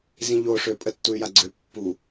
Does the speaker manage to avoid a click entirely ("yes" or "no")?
no